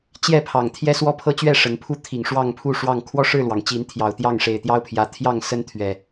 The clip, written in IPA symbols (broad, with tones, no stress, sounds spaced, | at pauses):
t͡ɕ j ɛ˥˨ pʰ ɑ˨˩ ŋ t̪ʰ j ɛ˦ s w ɔ˦ pʰ ɤ˦ t͡ɕ ɥ ɛ˥˨ ʂ ə˨˦ n pʰ u˦ t̪ʰ i˨˩ ŋ ʂ w ɑ˥˨ ŋ pʰ u˥˨ ʂ w ɑ˥˨ ŋ kʰ w ɔ˥˨ ʂ ɻ̩˥˨ l w ɑ˩ ŋ t͡ɕ i˨˦ n t̪ʰ j ɑ˨˩ ʊ̯ t̪ j ɑ˥˨ ŋ ʂ e˨˩ ɪ̯ t̪ j ɑ˦ ʊ̯ pʰ j ä˨˩ t̪ʰ j ɑ˥˨ ŋ s ə˦ n t̪ʰ ɥ ɛ˨˩